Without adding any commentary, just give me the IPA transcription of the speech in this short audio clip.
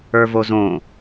ə˞ v o z õ

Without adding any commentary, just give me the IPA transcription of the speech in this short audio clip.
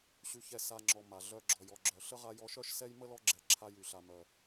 ɕ y˨ ç ɛ˨ s a˨ ŋ͡ǁ ɔ˩ m a˩ ɮ œ˨ ɡ͡ǁ ɔ˩ j ɔ˩ ɡ͡ǁ œ˩ ɬ ə˥ ʁ a˦ j ɔ˦ ʃ œ˥ ʃ s ɛ˥ j m ə˥ l ɔ˦ ɡ͡ǁ ɛ˨ ǁʰ a˦ j y˨ ɬ a˨ m œ˨

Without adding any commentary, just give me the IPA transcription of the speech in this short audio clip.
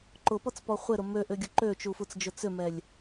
ǃ ʊ p ɔ t͡s p ɔ χʷ ɪ ɾ ʊ m ø ʔ ʏ ɡʲ ʊ ǃ ø t͡ʃ u f u t͡s d͡ʒ ʊ t͡s ʏ m ɛ lʲ

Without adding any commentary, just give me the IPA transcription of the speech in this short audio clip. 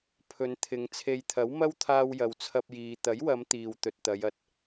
pʰ ɵ˨˧ n t̪ʰ ɪ˨˧ ŋ t͡sʰ e˨ j t̪ʰ ɐ˨˥ w m ɐ˥ w t̪ʰ aː˧ w j ɐ˨˧ w t͡sʰ ɐ˧ p̚ j iː˨ t̪ ɐ˨˥ j w ɐ˨˧ m t̪ iː˨ w t̪ ɵ˨ t̚ t̪ ɐ˨˧ j ɐ˨ t̚

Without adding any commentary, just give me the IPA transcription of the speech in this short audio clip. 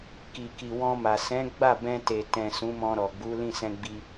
k i˨ k i˨ w ɔ̃˧ m a˨ s ɛ̃˨˦ ɡ͡b a˦˨ b ɛ̃˧ t e˨ t ɛ̃˨ s ũ˨˦ m ɔ̃˧ ɾ ɔ˨ ɡ͡b u˨˦ l ĩ˦˨ s ɛ̃˧ ɡ͡b i˧

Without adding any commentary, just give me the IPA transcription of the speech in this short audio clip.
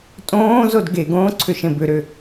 tʼ õː z o d ɡ e ɡ õː ǀʰ ʏ ʃ ẽ b ʏ ɾ ʏ

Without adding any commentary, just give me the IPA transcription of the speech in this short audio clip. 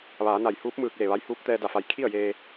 ʋ aː˩˧ n a˧˩ j h uː˧˥ p̚ m ɯː˧ k̚ l e˧˩ ʋ a˧˥ j h uː˧˥ p̚ t̪ ɛː˧ d a˧˩ f a˩˧ j kʰ i˥˨ ə̯ j eː˧

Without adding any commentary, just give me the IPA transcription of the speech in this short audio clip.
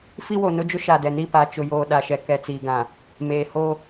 f i˦ w o˨ n ʊ˦ d͡ʒ ʊ˦ ʃ a˨ d ɛ˨ n i˦˨ p a˨ t͡ʃ ʊ˨ j oː˨ ɗ a˨ ʃ ɛ˨ k ɛ˨ t͡s iː˨ ɡ ã˨ | m eː˨ h o˦

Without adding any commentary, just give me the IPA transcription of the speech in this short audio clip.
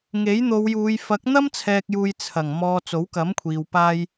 ŋ e˨˥ j n̪ o˨˧ w j uː˨˧ j f ɐ˨˥ k̚ n̪ ɐ˥ m t͡sʰ ɛː˨ k̚ j uː˨ j t͡sʰ ɐ˨˩ ŋ m ɔː˨ t͡s o˨˥ w k ɐ˨˥ m kʷʰ iː˨ w p aː˧ j

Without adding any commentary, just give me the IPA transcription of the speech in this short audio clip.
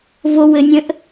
v o w ɘ nʲ ə̃ ʔ

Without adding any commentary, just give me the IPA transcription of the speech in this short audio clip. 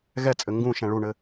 ɣ ɛ t͡sʼ ɘ ŋ ɡ ũ ʃ ɛ̃ ɭ u ɳ ɘ

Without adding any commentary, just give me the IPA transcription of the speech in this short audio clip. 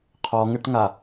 qʰ ɔ ŋ ɘ ʈ ŋ a

